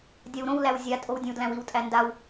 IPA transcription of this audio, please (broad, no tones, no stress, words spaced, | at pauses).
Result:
dʲawɾõwlæw zʲatʼow dʲẽwdlæ̃wiwtʼæ ndaw